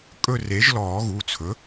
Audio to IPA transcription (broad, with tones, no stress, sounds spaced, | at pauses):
kʼ ɵ˦˨ r e˩˥ ʒ l ɔː˨˩˦ ɣ u˩˧˩ t͡sʰ ɵ˩˥